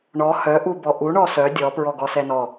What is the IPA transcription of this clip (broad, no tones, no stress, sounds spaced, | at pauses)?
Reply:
ɳ ɔ h œ ʔ u b ɔ ʔ u ɳ ɔ s œ dʲ ɔ p ɹ ɔ ɡ ɔ s ɛ n ɔ